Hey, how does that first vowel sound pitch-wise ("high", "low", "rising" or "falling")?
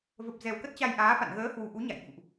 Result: low